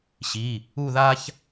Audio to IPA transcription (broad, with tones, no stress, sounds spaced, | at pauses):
ɕ i˩˧˩ | u˥˧ ð a˥ ç